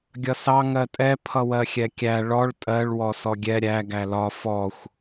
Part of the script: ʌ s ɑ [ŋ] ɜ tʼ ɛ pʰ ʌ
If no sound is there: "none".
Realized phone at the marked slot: ŋ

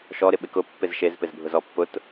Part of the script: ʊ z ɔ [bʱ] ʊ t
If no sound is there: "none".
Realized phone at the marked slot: pː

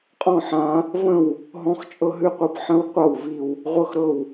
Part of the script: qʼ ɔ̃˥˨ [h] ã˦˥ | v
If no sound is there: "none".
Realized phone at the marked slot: ħ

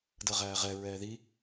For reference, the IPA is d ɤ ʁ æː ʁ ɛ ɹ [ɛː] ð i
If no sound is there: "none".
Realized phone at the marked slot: ɛː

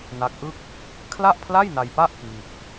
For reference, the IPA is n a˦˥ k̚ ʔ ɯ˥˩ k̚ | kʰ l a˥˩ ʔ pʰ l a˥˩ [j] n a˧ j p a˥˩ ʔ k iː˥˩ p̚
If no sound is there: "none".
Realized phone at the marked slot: j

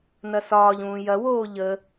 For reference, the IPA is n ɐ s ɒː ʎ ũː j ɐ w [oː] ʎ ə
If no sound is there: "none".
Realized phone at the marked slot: oː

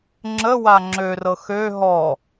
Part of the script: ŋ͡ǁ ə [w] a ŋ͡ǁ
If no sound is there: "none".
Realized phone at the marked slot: w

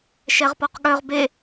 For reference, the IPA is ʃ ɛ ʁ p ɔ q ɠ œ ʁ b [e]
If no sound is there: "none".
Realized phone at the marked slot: e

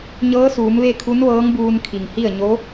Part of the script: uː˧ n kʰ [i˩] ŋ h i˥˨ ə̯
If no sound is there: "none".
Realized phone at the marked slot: i˩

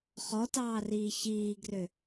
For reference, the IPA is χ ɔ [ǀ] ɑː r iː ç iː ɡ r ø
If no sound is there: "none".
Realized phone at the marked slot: t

